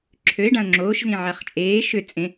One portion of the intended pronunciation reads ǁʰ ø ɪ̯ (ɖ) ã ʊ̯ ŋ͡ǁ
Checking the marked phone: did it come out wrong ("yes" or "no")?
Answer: no